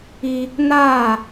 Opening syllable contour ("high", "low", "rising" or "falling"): high